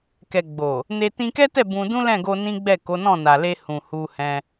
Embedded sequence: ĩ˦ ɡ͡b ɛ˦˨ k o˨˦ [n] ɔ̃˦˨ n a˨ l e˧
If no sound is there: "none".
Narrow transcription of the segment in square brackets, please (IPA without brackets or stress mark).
n